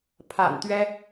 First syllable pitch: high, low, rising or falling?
low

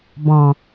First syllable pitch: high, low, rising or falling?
low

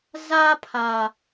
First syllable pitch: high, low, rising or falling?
high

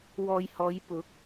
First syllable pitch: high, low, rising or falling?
low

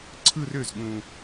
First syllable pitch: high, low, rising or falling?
falling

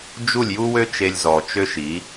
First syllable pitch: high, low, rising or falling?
falling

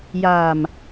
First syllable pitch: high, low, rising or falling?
low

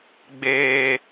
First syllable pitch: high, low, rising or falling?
high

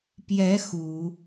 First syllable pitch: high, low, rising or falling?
rising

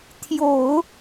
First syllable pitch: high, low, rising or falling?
low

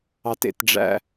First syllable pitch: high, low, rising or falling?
low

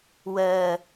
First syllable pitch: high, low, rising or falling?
low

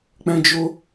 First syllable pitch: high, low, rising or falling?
high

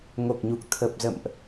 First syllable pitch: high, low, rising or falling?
low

